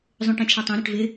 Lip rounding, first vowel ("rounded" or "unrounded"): rounded